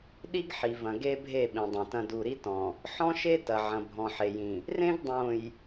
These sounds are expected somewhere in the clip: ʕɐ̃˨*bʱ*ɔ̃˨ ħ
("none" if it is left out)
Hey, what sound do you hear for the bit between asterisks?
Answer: bʱ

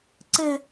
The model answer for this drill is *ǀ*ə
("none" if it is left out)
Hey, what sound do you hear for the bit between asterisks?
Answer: ǀ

